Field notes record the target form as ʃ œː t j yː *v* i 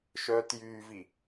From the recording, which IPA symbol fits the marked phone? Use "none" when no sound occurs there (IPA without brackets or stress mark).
v